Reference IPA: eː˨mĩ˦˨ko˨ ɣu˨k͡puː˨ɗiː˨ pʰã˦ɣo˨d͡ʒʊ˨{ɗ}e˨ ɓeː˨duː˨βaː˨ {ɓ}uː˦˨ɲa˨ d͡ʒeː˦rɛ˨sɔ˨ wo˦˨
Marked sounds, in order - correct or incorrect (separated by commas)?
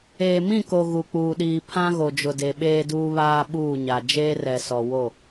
incorrect, correct